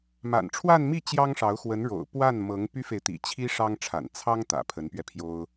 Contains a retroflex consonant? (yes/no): yes